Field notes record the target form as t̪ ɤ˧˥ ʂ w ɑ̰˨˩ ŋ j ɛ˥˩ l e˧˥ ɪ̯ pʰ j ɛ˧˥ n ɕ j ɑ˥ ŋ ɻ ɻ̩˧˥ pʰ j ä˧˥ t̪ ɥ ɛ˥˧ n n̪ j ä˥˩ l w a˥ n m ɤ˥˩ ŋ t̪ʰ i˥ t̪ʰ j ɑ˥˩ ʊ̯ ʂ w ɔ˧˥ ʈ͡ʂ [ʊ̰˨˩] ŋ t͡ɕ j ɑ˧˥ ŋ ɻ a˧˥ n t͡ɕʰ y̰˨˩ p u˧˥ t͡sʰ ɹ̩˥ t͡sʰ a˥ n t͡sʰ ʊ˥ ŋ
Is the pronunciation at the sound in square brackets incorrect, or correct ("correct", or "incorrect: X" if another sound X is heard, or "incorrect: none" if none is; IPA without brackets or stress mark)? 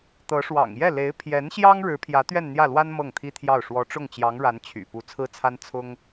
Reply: incorrect: ʊ˥˩